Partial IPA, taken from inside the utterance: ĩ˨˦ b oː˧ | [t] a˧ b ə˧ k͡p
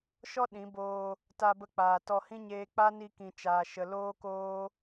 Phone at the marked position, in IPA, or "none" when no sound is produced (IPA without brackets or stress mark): t